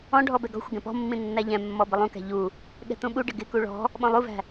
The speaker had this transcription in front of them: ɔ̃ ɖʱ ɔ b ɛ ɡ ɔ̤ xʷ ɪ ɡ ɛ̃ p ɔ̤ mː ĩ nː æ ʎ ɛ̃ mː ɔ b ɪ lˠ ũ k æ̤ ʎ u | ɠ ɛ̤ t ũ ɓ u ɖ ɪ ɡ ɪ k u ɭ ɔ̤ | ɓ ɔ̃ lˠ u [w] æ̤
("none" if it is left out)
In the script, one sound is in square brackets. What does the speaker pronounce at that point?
v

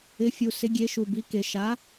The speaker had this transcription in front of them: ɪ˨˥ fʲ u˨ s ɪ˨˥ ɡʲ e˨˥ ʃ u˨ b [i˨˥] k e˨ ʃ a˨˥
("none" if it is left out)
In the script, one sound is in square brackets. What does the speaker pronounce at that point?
i˨˥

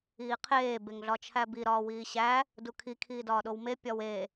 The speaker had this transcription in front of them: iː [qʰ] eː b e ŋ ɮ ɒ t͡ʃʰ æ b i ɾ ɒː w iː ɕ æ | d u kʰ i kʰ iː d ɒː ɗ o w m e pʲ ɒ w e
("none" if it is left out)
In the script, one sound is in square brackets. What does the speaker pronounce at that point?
qʰ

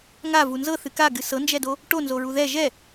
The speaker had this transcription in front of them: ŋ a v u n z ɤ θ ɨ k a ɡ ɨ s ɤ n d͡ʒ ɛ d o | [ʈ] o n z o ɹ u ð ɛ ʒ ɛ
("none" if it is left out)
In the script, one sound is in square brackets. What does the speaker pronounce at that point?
ʈ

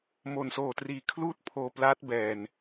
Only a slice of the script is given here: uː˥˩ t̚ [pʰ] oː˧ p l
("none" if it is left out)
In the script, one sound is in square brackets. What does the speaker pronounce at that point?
pʰ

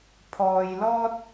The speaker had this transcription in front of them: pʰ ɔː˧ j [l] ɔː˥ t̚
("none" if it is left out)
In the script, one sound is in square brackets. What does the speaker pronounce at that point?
l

